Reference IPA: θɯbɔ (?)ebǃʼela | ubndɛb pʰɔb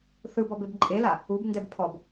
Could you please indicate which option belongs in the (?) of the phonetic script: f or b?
b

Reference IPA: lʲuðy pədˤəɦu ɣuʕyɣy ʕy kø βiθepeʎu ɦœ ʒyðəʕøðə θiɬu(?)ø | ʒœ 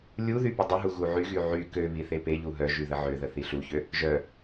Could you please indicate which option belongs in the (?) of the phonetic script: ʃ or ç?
ç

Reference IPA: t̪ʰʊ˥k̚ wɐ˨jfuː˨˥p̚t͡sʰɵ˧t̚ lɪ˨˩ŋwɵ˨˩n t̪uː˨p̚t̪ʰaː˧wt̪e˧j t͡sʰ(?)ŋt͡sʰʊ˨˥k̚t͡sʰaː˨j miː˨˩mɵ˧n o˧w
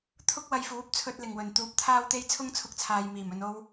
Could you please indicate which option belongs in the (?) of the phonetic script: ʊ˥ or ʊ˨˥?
ʊ˥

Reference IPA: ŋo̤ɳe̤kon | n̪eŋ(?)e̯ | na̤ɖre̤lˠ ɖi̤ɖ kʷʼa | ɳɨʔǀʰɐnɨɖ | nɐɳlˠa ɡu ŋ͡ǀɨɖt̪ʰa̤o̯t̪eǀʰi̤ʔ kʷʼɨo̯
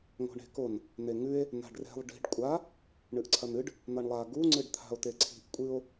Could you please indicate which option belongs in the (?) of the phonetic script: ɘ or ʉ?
ʉ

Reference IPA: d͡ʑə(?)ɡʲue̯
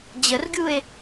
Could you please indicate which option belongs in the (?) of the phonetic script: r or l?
r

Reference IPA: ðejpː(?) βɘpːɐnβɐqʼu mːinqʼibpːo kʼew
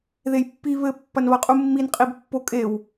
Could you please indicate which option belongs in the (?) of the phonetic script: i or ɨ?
i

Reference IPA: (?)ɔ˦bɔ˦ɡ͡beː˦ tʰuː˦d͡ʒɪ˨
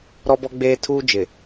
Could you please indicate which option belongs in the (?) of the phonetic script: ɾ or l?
ɾ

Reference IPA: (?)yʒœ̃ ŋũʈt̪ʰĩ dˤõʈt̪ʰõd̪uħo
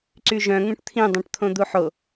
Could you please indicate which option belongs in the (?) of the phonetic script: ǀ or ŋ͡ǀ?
ǀ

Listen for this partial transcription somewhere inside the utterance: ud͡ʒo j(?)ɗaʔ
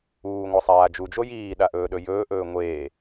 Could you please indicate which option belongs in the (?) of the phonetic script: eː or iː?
iː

